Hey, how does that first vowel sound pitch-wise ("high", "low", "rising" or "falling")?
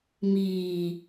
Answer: low